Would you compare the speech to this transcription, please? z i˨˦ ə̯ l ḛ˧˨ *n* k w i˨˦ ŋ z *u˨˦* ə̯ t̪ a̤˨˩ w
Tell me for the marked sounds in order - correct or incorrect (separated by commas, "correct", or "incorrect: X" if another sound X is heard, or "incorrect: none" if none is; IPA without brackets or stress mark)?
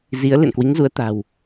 correct, correct